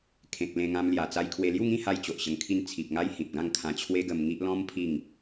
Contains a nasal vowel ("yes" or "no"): yes